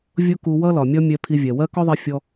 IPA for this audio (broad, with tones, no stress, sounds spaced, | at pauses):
vʲ ʊ˥ k u˧ w ʌ˥ l ɒ˩ mʲ ɒ˥ mʲ ɛ˧ pʰ i˧ vʲ ɛ˩ w ɜ˥ k ɔ˥ ðˤ i˧ fʲ ɔ˧